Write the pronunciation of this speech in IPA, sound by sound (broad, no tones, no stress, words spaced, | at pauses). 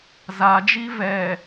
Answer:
zad͡ʒi vɛ